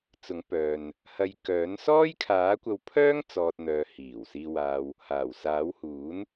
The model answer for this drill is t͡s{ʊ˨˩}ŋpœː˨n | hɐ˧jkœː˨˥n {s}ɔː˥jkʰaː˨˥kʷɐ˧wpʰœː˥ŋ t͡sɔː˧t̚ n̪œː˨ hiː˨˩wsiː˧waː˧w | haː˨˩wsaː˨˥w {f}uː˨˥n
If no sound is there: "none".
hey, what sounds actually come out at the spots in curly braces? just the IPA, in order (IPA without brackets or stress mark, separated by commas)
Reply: ʊ˨˥, s, h